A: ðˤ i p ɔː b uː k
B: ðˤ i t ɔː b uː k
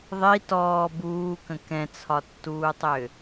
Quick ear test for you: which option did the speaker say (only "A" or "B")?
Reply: B